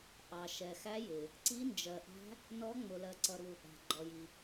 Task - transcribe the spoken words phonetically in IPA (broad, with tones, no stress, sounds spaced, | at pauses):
ʔ ɑ˩ ʃ ɛ˩ x æ˧˥ j ɪ˩ | ǀ i˧˥ n d͡ʒ ɜ˩ ʔ æ̤˧˥ | n ɔ˧˥ ŋ͡m ʊ˩ l ɜ˩ ǀ ʌ˩ ɾ u˩ | æ̤˩ ɡ͡ǃ ɔ˩ j i˩